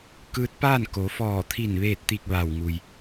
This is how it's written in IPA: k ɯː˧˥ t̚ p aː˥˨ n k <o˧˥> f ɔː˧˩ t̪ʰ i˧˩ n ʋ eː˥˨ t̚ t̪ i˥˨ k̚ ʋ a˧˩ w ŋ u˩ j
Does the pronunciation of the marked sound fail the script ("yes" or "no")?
yes